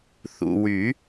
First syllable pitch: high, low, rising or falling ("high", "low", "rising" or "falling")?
low